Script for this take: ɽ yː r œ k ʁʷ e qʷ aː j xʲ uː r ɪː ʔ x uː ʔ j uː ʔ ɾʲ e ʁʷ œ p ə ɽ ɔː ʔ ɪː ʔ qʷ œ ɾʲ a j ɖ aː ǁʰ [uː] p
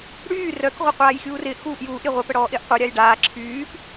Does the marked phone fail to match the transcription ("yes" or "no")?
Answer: yes